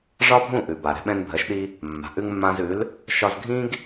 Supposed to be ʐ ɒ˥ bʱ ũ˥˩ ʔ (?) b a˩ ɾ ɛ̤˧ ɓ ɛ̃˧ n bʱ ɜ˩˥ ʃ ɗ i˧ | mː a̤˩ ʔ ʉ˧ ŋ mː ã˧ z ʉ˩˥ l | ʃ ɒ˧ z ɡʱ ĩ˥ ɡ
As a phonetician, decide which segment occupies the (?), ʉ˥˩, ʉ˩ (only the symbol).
ʉ˩